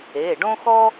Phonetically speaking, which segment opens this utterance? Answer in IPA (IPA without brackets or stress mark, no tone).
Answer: e